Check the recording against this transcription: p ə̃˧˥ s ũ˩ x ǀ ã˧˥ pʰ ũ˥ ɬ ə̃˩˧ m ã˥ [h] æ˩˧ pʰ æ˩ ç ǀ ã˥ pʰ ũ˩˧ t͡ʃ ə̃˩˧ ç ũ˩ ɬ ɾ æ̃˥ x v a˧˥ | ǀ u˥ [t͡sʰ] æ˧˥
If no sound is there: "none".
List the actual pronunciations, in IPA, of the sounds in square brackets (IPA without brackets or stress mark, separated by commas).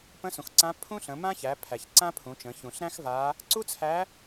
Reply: ç, t͡sʰ